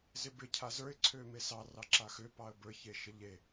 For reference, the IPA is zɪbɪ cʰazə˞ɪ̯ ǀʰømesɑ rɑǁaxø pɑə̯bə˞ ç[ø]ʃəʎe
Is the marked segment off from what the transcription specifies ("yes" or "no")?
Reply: yes